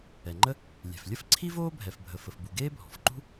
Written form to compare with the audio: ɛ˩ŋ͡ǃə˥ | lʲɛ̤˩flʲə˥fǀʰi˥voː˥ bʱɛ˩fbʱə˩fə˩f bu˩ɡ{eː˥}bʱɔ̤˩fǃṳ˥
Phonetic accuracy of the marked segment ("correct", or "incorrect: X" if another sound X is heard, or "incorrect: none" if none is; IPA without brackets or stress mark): correct